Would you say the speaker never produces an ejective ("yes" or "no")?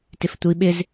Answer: yes